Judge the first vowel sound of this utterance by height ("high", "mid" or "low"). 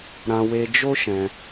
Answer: low